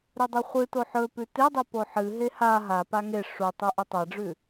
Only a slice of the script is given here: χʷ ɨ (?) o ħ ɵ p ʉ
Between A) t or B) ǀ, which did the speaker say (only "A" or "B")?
A